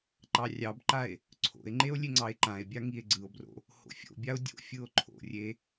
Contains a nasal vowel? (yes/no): yes